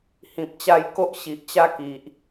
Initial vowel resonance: nasal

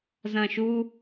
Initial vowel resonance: nasal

